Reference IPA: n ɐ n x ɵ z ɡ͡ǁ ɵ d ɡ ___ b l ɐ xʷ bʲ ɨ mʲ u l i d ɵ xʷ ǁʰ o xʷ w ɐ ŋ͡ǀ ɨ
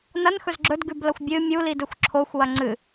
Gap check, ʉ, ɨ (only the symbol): ʉ